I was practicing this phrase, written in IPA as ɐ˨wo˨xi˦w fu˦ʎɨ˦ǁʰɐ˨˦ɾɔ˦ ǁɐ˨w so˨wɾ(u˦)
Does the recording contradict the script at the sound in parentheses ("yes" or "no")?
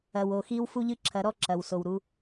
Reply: no